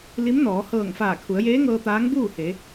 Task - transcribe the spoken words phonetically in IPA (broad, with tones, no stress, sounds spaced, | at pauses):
l i˧˥ m n ɔː˩˧ h ɤː˧˩ ŋ f aː˧˩ kʰ u˩˧ ə̯ j eː˧˥ ŋ ɤː˧ t̪ aː˧˥ ŋ b uː˥˨ h e˩˧